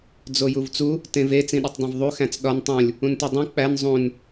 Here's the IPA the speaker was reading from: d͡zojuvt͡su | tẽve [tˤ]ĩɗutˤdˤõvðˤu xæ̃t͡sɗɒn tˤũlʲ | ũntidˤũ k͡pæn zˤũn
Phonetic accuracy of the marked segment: incorrect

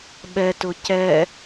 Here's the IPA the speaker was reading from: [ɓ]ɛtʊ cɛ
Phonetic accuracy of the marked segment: correct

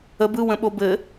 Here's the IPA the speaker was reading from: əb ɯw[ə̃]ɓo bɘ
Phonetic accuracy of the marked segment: correct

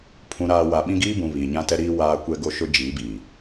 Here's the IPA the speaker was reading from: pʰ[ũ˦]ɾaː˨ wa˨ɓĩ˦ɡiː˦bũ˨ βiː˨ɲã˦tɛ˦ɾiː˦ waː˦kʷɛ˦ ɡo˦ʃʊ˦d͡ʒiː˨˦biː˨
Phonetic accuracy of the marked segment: incorrect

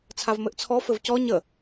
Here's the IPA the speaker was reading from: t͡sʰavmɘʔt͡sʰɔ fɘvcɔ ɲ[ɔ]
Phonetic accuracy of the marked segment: incorrect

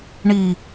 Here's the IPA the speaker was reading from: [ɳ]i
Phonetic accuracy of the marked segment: correct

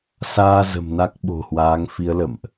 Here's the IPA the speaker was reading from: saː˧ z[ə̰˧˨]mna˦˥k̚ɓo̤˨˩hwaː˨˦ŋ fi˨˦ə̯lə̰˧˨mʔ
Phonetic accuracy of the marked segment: incorrect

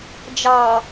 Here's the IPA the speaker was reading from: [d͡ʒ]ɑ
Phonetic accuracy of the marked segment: correct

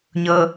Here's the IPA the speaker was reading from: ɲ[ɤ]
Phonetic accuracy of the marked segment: correct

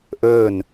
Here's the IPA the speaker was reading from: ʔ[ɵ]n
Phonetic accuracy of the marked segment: incorrect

